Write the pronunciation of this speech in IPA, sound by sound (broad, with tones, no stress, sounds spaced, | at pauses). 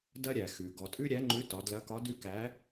d ɐ˦ ɾʲ æ˩ x ʉ˩ ɡ ɔ˩ tʼ ʉ˦ ɾʲ æ˨˥ ŋ͡ǃ ʉ˨˥ t ɒ˩˧ d l ɐ˨˥ k ɒ˨˥ d ʉ˦ k æ˨˥